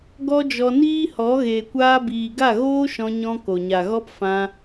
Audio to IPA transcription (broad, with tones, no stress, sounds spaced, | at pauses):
ɡ ɔ˦ d͡ʒ ɔ˧ n iː˦ h ɔ˨˦ ɣ eː˨ kʷ aː˧ b iː˨ ɡ a˦˨ ɣ oː˦ ʃ ɔ̃˧ ɲ ɔ̃˧ k o˨ ɲ a˨ ɣ ɔ˦ p f ã˧